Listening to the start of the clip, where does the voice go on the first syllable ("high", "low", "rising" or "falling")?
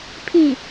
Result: falling